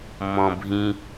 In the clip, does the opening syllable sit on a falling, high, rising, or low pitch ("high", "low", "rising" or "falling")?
low